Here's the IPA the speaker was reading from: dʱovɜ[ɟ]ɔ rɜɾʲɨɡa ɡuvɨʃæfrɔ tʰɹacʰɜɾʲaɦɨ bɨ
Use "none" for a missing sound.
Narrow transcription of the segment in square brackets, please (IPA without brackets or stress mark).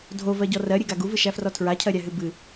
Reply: ɟ